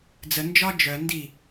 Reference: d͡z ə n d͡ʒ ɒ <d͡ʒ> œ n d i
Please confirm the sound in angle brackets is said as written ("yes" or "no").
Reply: yes